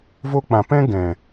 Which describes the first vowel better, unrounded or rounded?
rounded